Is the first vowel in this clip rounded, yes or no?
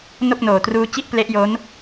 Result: yes